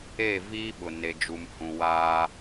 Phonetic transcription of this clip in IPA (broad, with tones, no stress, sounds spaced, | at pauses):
e˦˨ v iː˦ ɓ ʊ˨ n e˦ d͡ʒ u˦ m h ũ˦ w aː˦